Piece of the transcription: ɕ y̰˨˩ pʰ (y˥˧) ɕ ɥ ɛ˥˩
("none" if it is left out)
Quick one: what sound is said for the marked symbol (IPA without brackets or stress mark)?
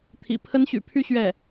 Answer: y˥˧